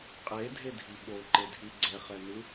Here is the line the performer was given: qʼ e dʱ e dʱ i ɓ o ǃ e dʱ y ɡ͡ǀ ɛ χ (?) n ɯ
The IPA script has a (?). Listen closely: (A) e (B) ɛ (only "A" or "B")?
B